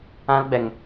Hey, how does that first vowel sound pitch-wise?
high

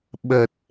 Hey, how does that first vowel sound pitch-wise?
low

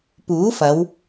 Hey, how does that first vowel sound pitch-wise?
rising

